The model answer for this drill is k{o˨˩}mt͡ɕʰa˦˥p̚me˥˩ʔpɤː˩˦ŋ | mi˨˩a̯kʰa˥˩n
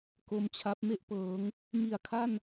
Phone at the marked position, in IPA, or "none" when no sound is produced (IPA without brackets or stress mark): o˧